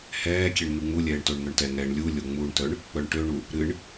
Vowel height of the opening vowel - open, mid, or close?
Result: mid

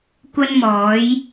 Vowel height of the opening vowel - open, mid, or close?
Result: open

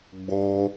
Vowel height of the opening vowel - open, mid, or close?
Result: mid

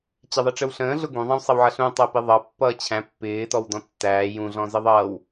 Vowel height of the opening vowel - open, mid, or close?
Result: mid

